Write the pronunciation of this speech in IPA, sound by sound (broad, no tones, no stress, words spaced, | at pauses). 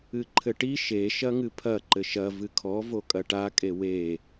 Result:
ɨǃʰɘʈi ʃe ʃɐŋɨpʰɐ ǃɘʃɐ vɨkʰɔ vokʼɐʈa kʼewe